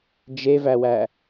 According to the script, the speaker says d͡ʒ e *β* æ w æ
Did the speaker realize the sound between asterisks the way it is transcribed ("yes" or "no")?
no